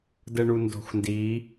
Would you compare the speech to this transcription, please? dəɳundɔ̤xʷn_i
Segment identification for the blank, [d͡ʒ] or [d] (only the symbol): d